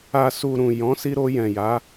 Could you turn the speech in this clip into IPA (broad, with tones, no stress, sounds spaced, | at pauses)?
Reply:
a˨ s u˨ ɾ ũ˨ j ɔ̃˨˦ s i˧ ɾ o˧ j ɛ̃˨ j a˨˦